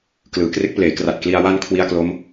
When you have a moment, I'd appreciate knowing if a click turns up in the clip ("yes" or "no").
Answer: no